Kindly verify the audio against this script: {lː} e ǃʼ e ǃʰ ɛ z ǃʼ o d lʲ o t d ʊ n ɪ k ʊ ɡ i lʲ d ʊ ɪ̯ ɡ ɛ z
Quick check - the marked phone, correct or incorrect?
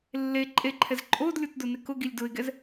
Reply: correct